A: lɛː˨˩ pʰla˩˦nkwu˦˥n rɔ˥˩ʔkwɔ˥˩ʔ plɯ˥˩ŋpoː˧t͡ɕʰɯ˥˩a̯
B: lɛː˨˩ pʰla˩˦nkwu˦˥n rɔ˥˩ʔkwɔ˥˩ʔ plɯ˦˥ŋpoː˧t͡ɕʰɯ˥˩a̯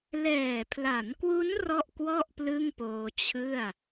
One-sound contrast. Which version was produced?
A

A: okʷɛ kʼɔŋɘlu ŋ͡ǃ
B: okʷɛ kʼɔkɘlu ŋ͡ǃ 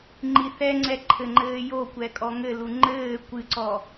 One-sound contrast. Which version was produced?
A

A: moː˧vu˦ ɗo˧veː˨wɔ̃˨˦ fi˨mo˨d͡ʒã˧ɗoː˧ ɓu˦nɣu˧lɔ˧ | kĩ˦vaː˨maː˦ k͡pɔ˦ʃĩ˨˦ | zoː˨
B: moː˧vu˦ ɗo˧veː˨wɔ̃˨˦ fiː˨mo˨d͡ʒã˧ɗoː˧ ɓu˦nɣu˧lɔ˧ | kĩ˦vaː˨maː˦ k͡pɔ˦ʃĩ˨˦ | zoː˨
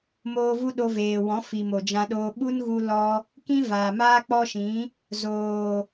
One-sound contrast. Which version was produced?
A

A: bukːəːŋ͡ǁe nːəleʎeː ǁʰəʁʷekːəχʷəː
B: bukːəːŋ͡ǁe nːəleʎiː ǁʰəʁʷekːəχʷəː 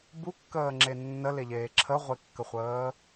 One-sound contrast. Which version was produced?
A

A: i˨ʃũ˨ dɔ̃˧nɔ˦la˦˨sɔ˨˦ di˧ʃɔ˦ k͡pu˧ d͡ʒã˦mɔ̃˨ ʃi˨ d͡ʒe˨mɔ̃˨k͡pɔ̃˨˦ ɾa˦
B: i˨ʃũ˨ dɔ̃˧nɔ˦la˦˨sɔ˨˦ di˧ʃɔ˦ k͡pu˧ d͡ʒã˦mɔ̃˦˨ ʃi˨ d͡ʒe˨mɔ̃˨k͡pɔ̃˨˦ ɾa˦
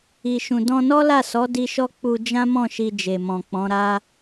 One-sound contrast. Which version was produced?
B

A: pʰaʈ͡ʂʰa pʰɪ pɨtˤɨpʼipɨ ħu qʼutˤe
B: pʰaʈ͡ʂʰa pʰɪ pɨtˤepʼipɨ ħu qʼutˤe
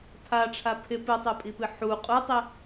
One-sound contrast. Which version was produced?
B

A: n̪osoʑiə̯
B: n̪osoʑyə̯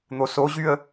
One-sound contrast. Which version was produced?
B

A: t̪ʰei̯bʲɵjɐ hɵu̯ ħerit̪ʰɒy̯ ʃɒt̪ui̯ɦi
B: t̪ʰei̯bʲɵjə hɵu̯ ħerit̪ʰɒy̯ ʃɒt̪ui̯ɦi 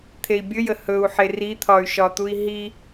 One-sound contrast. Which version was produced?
B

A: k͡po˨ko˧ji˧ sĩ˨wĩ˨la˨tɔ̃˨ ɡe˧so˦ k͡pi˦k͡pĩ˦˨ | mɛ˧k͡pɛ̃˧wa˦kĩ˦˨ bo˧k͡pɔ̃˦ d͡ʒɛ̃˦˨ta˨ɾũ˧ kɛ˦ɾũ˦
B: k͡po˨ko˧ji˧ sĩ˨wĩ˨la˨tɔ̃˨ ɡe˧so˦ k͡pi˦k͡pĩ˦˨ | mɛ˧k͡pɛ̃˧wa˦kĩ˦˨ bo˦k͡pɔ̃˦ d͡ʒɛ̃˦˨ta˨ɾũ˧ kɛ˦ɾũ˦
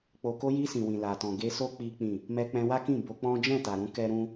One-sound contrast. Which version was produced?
A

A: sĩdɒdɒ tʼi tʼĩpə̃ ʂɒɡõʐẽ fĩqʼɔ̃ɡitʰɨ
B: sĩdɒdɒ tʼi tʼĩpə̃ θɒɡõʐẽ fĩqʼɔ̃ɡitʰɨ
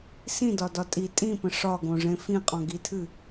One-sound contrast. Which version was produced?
A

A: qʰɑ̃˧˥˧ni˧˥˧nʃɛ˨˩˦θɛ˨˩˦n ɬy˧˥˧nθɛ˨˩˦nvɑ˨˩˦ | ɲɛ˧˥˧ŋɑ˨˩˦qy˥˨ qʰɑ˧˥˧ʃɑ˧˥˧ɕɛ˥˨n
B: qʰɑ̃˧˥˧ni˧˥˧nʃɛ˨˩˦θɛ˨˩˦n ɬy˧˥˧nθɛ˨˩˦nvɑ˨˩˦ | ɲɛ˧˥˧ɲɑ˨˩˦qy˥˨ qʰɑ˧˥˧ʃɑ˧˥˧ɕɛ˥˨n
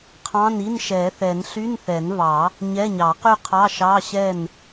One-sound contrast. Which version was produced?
B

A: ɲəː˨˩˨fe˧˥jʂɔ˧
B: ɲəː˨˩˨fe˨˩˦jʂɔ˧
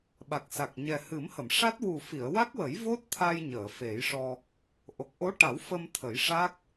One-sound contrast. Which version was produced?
B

